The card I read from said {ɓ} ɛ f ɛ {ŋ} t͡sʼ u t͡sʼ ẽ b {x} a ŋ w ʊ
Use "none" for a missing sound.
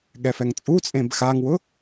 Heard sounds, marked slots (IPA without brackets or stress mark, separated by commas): ɠ, ŋ, x